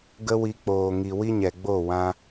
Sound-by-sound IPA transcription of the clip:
ɡ ə˦ w i˧ k͡p oː˨ ŋ i˨ w i˦ ɲ ɛ˨ ɡ͡b o˦˨ w ã˦

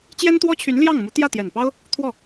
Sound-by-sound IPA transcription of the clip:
t͡ɕ j ɛ˥ n t̪ w ɔ˥ t͡ɕʰ y˧˥ n l j ɑ˥˩ ŋ m u˧˥ t̪ j ä˥˩ t̪ j ɛ˨˩ n p ɑ˥ ʊ̯ | t̪ʰ w ɔ˥˩

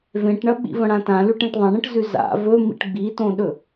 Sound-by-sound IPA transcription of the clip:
v ẽ ʈ ɳ ɐ ɓ ḭ v ɐ̃ ɽ ã t ã l ʉ ʈ ẽ ʈ ðˤ ɐ̃ ɳ ɐ̃ ʈ z ʉ z a̰ v ɵ m ḭ ʈ ɡ͡b i t õ ɗ ɵ

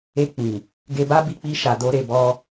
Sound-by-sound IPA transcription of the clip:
e˧ k͡p ĩ˨ | ɡ e˧ b a˦ b i˧ k͡p i˧ ʃ a˨ d o˧ ɾ e˨ b ɔ˧

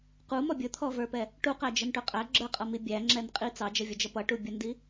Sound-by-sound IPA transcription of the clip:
q u m ɔ bʲ ʊ t̪ʰ ɔ v ə˞ p ɛ | ʈ u q æ d͡ʒ ə n ʈ ʊ qʼ æ ɡ͡ǁ ə˞ qʼ ʌ m i bʲ æ ŋ͡ǁ ɛ n qʼ i t͡s ɑ d͡ʒ ʌ vʲ ʌ d͡ʒ ʌ p ʌ ʈ u bʲ ʌ n d i

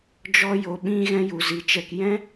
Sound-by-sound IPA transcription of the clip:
d͡ʒ ɔ˧ j o˨ ɓ ĩ˧ ɣ ɛ̃˦ j u˨ z i˨ t͡ʃ ɛ˧ k j ɛ̃˦

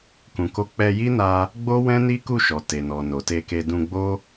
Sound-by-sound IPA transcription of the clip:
k ũ˨ k o˧ k͡p ɛ˧ j i˦ n a˧ | ɡ͡b o˦ w ɛ̃˦ n i˦ k u˦˨ ʃ ɔ˨ t e˨ n ɔ˨ n o˨ t e˧ k e˧ d ũ˧ ɡ͡b o˦

